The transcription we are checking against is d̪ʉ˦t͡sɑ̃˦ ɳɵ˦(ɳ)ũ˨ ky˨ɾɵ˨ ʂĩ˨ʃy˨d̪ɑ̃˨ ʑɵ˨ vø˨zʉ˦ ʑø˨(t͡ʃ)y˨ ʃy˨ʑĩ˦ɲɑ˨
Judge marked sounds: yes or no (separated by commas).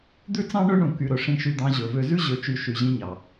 yes, yes